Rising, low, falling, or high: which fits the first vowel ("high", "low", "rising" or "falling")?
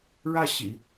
falling